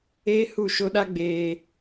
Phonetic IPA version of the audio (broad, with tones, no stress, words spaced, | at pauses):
eː˦ hu˦˨ʃo˦ ɗa˦ ɡ͡beː˦